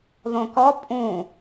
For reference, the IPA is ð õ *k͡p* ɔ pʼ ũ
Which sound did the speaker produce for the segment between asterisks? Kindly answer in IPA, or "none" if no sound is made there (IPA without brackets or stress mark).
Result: k